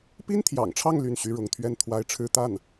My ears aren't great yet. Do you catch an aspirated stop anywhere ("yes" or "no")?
yes